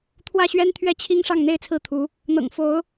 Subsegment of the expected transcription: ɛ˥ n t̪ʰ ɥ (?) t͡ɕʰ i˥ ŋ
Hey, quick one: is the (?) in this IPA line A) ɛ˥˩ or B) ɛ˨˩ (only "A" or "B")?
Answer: A